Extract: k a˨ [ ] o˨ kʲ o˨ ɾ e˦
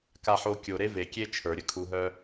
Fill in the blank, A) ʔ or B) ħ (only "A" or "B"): B